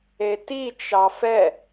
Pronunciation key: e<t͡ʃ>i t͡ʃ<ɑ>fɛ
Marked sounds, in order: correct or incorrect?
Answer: incorrect, correct

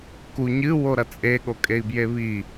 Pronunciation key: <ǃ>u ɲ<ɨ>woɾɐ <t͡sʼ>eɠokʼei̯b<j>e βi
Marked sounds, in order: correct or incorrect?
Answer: incorrect, correct, correct, correct

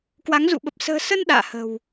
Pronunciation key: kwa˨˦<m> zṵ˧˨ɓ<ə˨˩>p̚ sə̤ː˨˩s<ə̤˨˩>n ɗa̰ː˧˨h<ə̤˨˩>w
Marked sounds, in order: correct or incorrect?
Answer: incorrect, correct, incorrect, correct

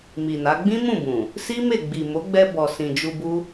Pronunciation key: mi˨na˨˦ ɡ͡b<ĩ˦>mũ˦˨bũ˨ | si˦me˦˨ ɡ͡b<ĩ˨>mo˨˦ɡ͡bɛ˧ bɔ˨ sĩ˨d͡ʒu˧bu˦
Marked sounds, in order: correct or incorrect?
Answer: correct, incorrect

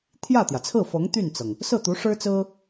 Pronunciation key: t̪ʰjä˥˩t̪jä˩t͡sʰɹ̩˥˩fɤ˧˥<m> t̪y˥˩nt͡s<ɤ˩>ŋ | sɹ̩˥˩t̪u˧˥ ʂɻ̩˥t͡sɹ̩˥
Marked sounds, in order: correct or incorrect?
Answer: incorrect, correct

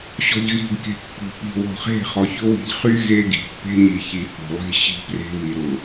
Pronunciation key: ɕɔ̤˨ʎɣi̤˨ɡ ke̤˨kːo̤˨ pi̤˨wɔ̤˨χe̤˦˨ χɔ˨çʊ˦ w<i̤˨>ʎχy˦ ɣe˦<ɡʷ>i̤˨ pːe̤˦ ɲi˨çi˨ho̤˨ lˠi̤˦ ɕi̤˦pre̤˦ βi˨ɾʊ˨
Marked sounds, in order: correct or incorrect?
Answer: correct, incorrect

